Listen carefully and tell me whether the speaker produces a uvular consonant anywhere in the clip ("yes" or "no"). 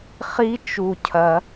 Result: yes